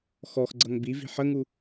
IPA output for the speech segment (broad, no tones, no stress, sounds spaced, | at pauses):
x ɔ x ɡ͡ǀ ʌ ŋ b i v i̤ ħ ə ŋ u